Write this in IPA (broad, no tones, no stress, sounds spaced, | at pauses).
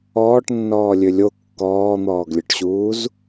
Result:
ɔː ʈ nː ɔː lʲ ø lʲ o kː ɔː n̪ ɔː ɡ lʲ œ ʈ ɕ uː z